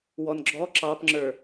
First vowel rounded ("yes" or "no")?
yes